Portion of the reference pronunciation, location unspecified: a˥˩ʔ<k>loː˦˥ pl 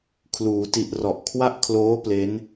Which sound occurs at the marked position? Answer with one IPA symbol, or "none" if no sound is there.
kʰ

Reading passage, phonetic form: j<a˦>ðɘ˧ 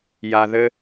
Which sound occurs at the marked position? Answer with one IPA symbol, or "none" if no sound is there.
a˨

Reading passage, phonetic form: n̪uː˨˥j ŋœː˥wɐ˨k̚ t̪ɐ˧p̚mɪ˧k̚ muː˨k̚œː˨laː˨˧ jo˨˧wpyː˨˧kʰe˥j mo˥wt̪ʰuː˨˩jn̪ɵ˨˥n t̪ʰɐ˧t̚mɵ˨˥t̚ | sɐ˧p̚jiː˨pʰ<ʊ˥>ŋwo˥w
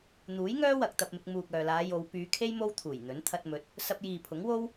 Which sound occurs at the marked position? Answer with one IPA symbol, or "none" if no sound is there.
ʊ˨˥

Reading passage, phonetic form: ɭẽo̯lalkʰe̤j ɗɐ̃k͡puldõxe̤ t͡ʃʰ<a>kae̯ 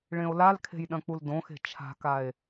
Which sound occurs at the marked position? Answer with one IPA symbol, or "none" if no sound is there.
a̤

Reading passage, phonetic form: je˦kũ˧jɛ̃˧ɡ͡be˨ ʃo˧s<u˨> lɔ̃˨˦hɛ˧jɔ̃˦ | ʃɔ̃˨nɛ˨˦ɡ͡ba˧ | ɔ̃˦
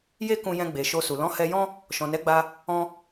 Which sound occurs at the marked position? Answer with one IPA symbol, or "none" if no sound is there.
u˨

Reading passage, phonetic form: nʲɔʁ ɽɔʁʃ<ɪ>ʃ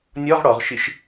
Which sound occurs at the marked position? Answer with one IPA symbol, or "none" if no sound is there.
ɪ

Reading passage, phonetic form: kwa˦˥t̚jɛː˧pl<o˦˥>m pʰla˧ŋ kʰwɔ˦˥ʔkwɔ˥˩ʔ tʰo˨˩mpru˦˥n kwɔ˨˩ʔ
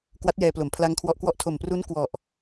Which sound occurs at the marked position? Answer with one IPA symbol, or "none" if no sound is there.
o˩˦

